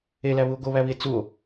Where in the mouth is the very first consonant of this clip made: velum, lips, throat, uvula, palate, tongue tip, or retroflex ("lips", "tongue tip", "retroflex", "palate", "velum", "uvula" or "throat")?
tongue tip